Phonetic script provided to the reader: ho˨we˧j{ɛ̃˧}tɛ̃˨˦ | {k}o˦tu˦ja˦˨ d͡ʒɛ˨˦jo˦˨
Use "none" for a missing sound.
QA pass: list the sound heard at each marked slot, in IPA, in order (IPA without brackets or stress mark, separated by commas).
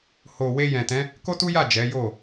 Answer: ɛ̃˨, k